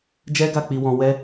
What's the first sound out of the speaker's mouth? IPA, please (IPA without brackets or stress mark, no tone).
d͡ʒ